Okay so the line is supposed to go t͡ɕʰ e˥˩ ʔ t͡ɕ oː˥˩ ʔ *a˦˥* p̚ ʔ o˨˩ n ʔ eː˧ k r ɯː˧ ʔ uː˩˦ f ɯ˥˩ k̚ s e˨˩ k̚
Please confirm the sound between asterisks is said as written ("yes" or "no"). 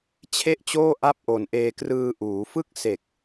no